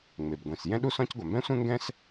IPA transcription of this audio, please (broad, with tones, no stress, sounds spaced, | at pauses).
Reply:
ŋ͡m e˩ b ɡʷ ĩ˩ s j ɛ̃˥ ɗ u˥ s ɔ̃˥ c ɡʷ a˩ m b ɛ̃˥ sʷ ẽ˥ ŋ ɡ ɛ̃˥ s